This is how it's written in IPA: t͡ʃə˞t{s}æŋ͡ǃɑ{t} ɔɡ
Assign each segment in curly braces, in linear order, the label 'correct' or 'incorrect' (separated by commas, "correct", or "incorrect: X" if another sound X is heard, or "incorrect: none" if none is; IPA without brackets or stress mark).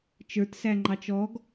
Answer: correct, incorrect: t͡ʃ